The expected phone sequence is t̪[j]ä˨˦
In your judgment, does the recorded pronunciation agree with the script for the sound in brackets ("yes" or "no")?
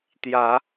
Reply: yes